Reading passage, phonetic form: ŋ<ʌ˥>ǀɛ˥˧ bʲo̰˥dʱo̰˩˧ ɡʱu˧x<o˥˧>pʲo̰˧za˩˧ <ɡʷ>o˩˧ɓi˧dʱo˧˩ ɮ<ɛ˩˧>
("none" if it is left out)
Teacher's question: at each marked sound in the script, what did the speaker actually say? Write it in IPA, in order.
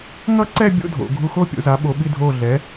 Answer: ʌ˥, o˥˧, ɓ, ɛ˩˧

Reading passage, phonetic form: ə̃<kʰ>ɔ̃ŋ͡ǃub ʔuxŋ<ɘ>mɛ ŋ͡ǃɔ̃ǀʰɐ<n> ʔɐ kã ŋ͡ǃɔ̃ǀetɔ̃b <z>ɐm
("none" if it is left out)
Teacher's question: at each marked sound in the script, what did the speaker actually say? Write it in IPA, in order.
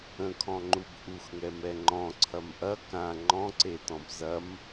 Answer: kʰ, ɛ, m, z

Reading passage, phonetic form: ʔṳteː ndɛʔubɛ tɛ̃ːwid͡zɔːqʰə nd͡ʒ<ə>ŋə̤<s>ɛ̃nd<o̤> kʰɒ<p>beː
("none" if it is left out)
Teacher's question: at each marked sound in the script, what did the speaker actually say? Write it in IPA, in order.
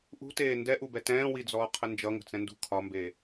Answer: ʌ, t͡s, ṳ, m

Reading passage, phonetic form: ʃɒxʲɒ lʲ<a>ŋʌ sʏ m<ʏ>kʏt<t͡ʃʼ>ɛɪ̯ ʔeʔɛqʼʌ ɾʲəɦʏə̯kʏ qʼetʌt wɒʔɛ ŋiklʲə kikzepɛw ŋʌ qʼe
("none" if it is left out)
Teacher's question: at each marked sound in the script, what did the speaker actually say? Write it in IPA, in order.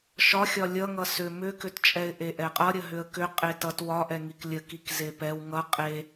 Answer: ʌ, ʏ, t͡ʃʼ

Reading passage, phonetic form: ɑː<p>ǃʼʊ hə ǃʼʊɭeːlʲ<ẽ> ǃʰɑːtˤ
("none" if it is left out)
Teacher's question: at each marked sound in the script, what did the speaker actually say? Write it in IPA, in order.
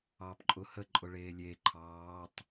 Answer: p, e

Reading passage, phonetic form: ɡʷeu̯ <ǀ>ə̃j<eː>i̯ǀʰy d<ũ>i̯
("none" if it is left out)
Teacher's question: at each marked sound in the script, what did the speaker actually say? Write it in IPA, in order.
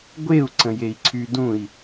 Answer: ǀ, e, ũ

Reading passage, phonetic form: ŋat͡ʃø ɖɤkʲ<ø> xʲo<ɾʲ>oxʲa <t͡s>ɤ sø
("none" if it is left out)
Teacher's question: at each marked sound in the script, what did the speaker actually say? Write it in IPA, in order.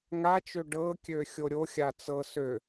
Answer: ø, ɾʲ, t͡s

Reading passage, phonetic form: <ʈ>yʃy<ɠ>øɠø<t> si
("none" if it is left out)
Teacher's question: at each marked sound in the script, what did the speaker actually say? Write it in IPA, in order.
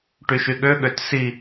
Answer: ʈ, ɠ, t

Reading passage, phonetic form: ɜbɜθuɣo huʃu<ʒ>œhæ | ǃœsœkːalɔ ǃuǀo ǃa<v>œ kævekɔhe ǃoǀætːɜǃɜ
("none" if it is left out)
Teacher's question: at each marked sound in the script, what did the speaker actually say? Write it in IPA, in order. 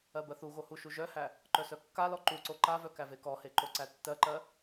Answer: ʒ, v

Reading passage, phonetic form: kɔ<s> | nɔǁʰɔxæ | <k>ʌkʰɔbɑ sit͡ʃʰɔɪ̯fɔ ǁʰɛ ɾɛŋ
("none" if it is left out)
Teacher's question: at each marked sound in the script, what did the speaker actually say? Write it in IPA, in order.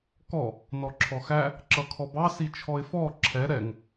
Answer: none, ǁ

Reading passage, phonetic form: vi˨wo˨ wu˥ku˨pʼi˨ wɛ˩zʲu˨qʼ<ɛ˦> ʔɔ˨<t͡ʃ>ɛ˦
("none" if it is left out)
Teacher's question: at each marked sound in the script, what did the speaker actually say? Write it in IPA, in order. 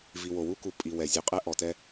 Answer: ɛ˦, t

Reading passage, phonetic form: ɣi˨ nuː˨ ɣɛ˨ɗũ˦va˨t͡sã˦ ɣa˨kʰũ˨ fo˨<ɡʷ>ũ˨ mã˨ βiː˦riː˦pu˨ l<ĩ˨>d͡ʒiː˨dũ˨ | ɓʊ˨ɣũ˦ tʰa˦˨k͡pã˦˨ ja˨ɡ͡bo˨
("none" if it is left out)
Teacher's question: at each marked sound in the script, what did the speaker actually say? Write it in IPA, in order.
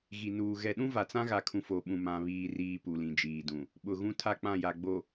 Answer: ɓ, ĩ˨

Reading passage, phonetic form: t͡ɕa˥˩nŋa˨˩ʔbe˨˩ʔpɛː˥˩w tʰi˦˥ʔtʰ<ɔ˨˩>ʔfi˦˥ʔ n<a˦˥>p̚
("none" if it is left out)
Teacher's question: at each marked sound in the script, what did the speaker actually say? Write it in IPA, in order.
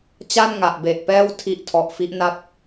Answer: ɔ˨˩, a˦˥

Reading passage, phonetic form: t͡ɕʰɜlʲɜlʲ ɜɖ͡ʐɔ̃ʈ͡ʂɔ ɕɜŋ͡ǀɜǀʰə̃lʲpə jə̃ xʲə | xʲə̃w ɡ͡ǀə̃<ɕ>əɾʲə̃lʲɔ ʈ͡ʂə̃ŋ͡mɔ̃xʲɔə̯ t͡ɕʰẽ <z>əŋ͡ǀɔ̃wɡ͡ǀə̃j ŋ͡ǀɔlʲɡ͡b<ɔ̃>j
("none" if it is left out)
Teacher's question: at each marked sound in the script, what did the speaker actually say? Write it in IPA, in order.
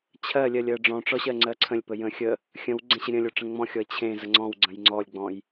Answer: ɕ, z, ɔ̃

